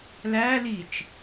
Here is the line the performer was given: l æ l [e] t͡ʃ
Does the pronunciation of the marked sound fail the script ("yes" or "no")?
yes